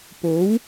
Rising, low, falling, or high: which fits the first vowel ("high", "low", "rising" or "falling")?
rising